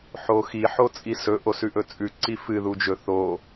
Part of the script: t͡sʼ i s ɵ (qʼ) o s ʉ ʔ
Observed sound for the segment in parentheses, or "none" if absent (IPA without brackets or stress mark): ʔ